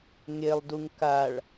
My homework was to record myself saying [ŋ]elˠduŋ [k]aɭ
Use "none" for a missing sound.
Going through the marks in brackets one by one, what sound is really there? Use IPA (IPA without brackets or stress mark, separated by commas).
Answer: ŋ, k